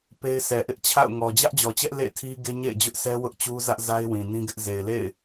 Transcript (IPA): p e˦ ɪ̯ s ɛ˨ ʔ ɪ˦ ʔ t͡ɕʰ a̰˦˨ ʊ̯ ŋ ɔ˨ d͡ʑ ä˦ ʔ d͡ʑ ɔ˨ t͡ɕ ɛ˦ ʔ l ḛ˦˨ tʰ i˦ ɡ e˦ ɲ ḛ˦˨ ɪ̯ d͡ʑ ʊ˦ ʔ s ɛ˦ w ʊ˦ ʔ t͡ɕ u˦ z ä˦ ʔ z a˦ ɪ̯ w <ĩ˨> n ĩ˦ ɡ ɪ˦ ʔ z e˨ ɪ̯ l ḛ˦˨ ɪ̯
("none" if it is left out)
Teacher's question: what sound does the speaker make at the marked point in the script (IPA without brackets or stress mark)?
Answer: ĩ˨